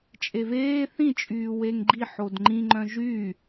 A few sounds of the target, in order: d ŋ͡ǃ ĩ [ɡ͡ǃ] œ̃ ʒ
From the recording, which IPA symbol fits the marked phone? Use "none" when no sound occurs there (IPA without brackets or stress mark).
ŋ͡ǃ